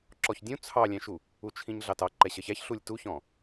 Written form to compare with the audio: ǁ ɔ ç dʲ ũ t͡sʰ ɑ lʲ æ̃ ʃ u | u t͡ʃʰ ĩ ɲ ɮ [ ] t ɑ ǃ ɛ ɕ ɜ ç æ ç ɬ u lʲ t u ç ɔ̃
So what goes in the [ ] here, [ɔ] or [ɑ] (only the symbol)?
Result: ɑ